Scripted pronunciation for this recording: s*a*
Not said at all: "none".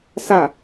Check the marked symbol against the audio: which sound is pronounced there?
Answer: a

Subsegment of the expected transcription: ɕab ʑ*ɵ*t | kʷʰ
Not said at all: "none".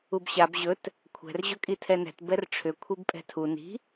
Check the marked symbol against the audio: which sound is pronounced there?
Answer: ɵ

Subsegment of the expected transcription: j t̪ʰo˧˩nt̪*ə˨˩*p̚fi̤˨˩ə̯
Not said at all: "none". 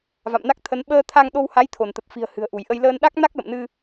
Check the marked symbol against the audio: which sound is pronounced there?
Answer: ə˨˩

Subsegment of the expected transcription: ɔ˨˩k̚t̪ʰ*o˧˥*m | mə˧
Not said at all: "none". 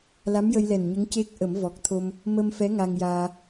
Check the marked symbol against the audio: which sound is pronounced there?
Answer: o˧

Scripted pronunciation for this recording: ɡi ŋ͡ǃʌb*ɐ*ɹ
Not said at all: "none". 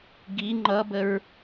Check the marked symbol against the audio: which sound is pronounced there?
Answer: ə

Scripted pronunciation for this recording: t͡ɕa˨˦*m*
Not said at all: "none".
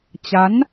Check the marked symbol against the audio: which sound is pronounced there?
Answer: n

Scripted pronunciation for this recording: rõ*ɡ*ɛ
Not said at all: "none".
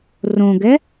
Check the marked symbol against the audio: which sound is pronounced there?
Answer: ɡ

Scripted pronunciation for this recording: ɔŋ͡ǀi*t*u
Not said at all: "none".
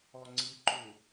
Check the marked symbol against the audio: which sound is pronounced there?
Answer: ǃ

